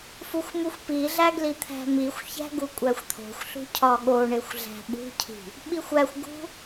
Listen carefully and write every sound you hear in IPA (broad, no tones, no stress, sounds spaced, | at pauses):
f u xʷ m u xʷ p i ɮ æ ɡ l i t̪ʰ æ̤ m i xʷ ç æ̤ ɡ u kʷʼ æ xʷ t̪ʰ o̤ xʷ ɬ ṳ cʰ ɒ ɠ o ɳ e xʷ ɮ æ̤ ɓ ṳ cʰ i̤ | ɓ i xʷ æ xʷ ɡ ṳ